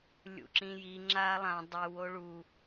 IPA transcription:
lʲ ṵ ǁ ĩ j i ŋ͡ǁ a lˠ ã dˤ ɯ w o ɭ u

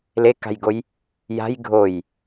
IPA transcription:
l e k a̤ j ɡ o j | j a̤ j ɡʱ o j

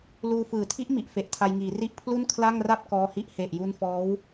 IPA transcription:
l uː˧ f ɯː˨˩ tʰ i˦˥ ʔ m i˨˩ ʔ f e˨˩ ʔ tʰ a˧ j ŋ iː˩˦ r i˦˥ ʔ pʰ l u˥˩ n kʰ l a˥˩ ŋ r a˥˩ p̚ k ɔː˧ h i˦˥ ʔ h e˨˩ ʔ j u˦˥ n f ɔː˦˥ w

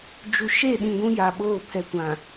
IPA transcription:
d͡ʒ u˨ ʃ e˦˨ ɗ ĩ˨ ɡʷ ũ˦ j a˨ ɓ oː˦˨ pʰ ɛ˨ kʷ ã˨

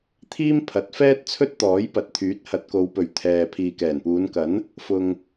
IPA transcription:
t̪ʰ iː˥ m pʰ ɐ˨˥ t̚ f ɛː˥ t̚ t͡sʰ ɵ˥ t̚ t̪ ɔː˨˥ j p ɐ˨ t̚ t̪ʰ yː˨˥ t̚ h ɐ˨˥ t̚ k o˨˧ w p ɵ˨ ɥ t̪ʰ ɛː˨ pʰ iː˨ k ɛː˨˩ n p uː˨˧ n k ɐ˨˥ n | f ʊ˨ ŋ

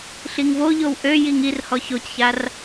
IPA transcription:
ɬ i ŋ v o ʎ o w ʔ ø j i ŋ i r h ɔ ç o c ç a r

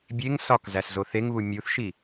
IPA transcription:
bʲ e ŋ s ɒ k z æ s z o θ e ŋ β u mʲ u θ ʃ i

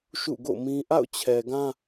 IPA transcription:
ʃ ṵ˦˨ ɡ o̰˦˨ m ĩ˦ ʔ a̰˦˨ ʊ̯ t͡ɕʰ ɛ˨ ɡ ã˦

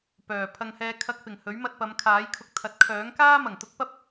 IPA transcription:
p œː˨˩ pʰ ɐ˧ ŋ h ɛː˧ kʰ ɐ˧ k̚ p ɪ˨˩ ŋ h ɵ˨˥ ɥ m ɐ˧ t̚ p ɐ˨˧ m kʰ aː˨˥ j kʰ ʊ˧ k̚ t̪ʰ ɐ˨˥ t̚ kʰ œː˨˥ ŋ k aː˥ m ɐ˨˩ ŋ t̪ ʊ˥ k̚ p ɐ˥ p̚

